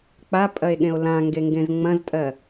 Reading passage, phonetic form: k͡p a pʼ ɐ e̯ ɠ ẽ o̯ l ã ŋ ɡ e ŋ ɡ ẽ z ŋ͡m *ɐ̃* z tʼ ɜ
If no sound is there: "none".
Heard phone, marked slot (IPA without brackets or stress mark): ɐ̃